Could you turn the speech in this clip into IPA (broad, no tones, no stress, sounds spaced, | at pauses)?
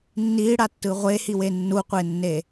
nː i ɽ a tː ɯ ʁʷ e h i w e nː u qʷ e nː e